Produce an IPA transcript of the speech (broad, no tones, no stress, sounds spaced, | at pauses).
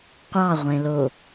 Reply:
qʷ ɑ ʁʷ ẽ l o